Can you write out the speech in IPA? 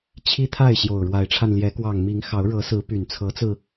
t͡ɕʰ i˦ t̪ʰ a˥˨ ɪ̯ ɕ j o˨˩ ʊ̯ ɻ w a˨˦ ɪ̯ ʈ͡ʂʰ a˧ n l j ɛ˨˦ k w ɑ˨˩ ŋ m i˨˦ ŋ x ɑ˨˦ ʊ̯ ɻ ɤ˨˦ s ɹ̩˨˦ p y˨˩ n t͡sʰ ɤ˨˦ t͡s ɹ̩˧

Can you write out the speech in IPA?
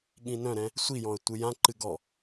ɠ ĩ n œ̃ ɾ ɛ̃ | sʷ i j ɔ̃ ə̯ tʷ ɨ j ã ǃ ɨ ɡ ɔ

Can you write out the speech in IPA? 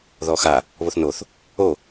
ð ɔ x a | β o θ n o θ | o

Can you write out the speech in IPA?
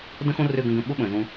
d ə̃˦ x õ˦ r ø˦˨ ɡ ə̃˦˨ ɡ ə̃˦˨ ɓ ʊ˦ ɓ ə̃ː˨ z ũ˧

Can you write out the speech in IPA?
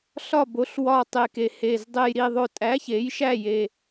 ɬ ɒ˥˨ b o˩˥ ɬ w ɒ˨˩ tˤ e˨˩ k e˨˩ h e˨˩ z dˤ e˨˩ j ɾ i˨˩ ðˤ o˨˩ tʼ æ˩˥ ç e˩˥ j ʃ æ˥˨ j e˨˩

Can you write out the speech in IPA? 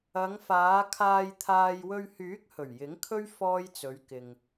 ɐ˨˧ ŋ f aː˨˧ kʰ aː˨ j t̪ʰ aː˨ j w ɵ˧ ɥ h yː˨˥ k̚ h ɵ˨˩ ɥ j ɪ˨˥ ŋ kʰ ɵ˥ ɥ f ɔː˥ j t͡s ɵ˨˧ ɥ k ɪ˨ ŋ

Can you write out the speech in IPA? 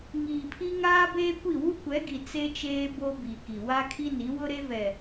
ŋ iː˨ pʰ i˦ ŋ aː˦ b eː˦ kʷ i˦˨ w u˦ kʷ ɛ˨˦ ɡ i˨ t͡s e˦ t͡ʃ eː˦ b o˦ b i˨ k i˨ w a˦ kʰ i˦ n i˨˦ w ʊ˦ ɾ e˦ v ɛ˨

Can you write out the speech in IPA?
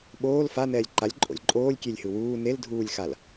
ɓ oː l f a n ɛː lʲ ǃ a lʲ ǃʼ o̰ lʲ ǃʼ oː lʲ kʲ e lʲ h ɯ w uː n e l dʱ uː lʲ x a l

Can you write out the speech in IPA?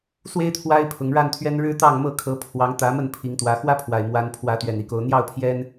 s w e˦ ɪ̯ t̪ʰ w a˦ ɪ̯ pʰ ʊ˨˦ ŋ ɻ a˥˨ n t̪ʰ ɥ ɛ˦ n ɻ ɻ̩˦ t̪ ɑ˥˨ ŋ m ɤ˥˨ kʰ ɤ˨˦ pʰ w ɑ˨˦ ŋ t̪ ä˨˦ m ə˥˨ n pʰ i˨˦ ŋ t̪ w ä˨˦ x w ä˦ pʰ w a˨˩ ɪ̯ m w a˨˦ n pʰ w ä˨˦ t̪ ɥ ɛ˨˩ n i˨˦ k o˨˦ ʊ̯ n̪ j ɑ˥˨ ʊ̯ pʰ j ɛ˦ n

